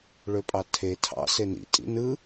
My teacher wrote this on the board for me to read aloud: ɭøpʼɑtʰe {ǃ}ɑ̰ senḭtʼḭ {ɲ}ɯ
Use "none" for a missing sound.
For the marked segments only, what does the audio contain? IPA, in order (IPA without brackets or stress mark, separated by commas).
tʰ, n